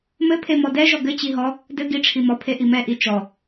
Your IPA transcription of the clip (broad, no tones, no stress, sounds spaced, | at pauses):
m ɘ pʰ e m ɔ d ɛ ʒ ɔ ɡ ɘ t͡ɕ i ɦ ɔ | d ɘ ɡ i ʈ͡ʂʰ i m ɔ pʰ e ʔ i m ɛ ʔ i t͡ʃ ɔ